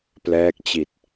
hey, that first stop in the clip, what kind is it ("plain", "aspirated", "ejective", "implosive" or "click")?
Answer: plain